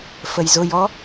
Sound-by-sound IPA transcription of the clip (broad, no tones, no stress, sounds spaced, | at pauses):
f ə j z ʊ j ɔ